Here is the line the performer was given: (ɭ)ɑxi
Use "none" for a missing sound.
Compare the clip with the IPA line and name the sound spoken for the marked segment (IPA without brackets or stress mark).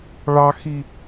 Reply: ɭ